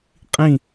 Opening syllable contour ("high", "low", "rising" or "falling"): falling